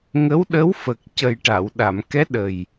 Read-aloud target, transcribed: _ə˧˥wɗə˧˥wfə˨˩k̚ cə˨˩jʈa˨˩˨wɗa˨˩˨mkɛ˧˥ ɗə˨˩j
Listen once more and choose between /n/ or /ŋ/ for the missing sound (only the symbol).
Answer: ŋ